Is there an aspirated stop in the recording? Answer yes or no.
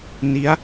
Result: no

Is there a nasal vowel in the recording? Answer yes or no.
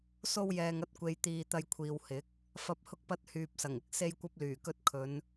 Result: no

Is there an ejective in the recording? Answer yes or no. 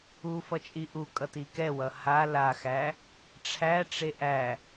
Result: yes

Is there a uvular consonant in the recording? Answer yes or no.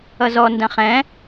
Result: yes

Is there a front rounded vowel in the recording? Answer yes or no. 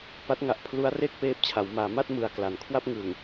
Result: no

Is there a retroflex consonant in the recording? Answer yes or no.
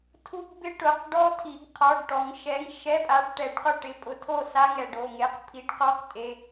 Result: yes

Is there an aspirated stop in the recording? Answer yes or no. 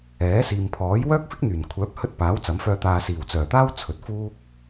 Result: yes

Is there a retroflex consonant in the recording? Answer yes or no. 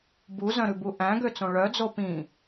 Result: yes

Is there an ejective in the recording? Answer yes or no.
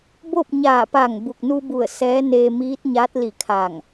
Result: no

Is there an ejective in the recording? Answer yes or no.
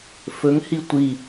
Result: no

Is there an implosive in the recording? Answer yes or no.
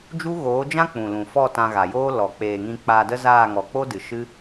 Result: no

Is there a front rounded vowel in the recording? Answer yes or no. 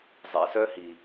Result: yes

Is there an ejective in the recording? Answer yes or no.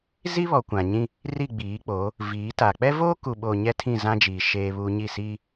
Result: no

